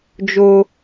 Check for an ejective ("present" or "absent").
absent